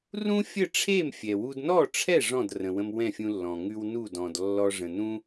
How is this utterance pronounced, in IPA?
rũ˥ fʲə˥˩ʈ͡ʂʰe˥˩m fʲɛ˩wu˧d nɔ˥˩ʈ͡ʂʰɛ˥˩ ʐɔ̃˥˩drə̃˩wə̃˧m wɛ̃˥˩fʲũ˧lːɔ̃˩ ŋʉ˧wnu˥˩dɔ̃˩d lːɔ˧ʐə̃˩nũ˥

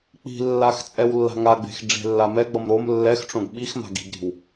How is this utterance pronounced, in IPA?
k͡pi̤lːax t͡sʼɛwlːa̤ŋaɡ͡be̤x ɖ͡ʐe̤lːamɛɡ͡bʌm ɾom lːɛxʈ͡ʂõɡ ɓixma̤ɡ i̤ɡɾi̤w

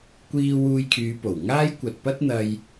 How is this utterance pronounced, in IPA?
kʷiː˧wuː˧jkʰyː˨˧ po˨˩wŋaː˥j kʷɐ˨t̚pɐ˥t̚n̪ɐ˧j

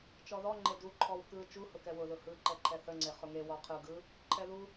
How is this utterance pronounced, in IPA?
t͡ʃɔðɔŋ͡ǃe duǃʰɔw kɯ t͡ʃuhʊ kɛwʊðʊ hɯǃɛǃʰɛ θəŋ͡ǀe χʊŋe wɔqʰɯ ɡɯ | ǃʰɛðu

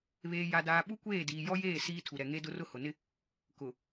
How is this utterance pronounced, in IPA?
βeː˨ja˨ daː˨ɓu˦kʷeː˦˨ diː˨jɔ˦jeː˦˨ siː˦ tʰu˨ɾɛ˨ŋe˦ dʊ˦rʊ˦hʊ˨nɪ˦ | kʊ˨

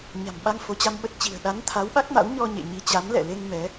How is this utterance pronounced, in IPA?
ɲa̤˨˩mɓa˧ŋ fo˨˦t͡ɕa˧mɓə˦˥t̚t͡ɕi̤˨˩ə̯ ɗa˨˦nt̪ʰa˨˦wɓa˦˥k̚ma̰˧˥w ɲɔ˧ɲḛ˧˨ ɲi˨˦t͡ɕa˨˦mlɛ̰˧˨le˧ŋ mɛ˨˦

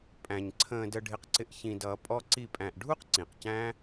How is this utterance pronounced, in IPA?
pʼæ̃˧ɲ ǀʰə̃ː˧də˧ɖʱɪ˧qǀɪ˧ʔ çĩ˧dʌ˨˦pʼɔ˦ ǀi˦˨pʼæ̃˧ʔ ɖʱu˦q ǀĩ˨qcæ̃˦

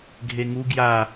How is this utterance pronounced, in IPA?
ɡʱeŋu ɡja

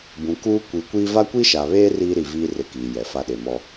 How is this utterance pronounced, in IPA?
bũ˨kuː˦ kʷi˨˦kʷiː˦ va˦kʷi˦ʃa˨βeː˦ riː˦ɾi˨viː˦ rɪ˦kiː˨ jɛ˨fa˦ɗe˨ mɔ˦

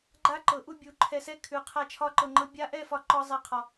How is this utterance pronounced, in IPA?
ɡ͡ǃa˦ǃɤ˨˦ʔu˧ bʲu˨˦ǃʰɛ˧sɛ˦kʰʉ˨˦ qʰa˧t͡ʃʰɒ˧ǃɤ˨ŋ͡ǃɤ˧ bʲa˧ʔɛ˦˨fɒ˧ ǃɒ˦zˤɛ˧qʰɒ˨

